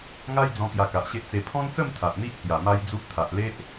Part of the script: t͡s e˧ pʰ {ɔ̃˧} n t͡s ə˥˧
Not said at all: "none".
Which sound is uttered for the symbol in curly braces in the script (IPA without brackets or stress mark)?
ɔ̃˦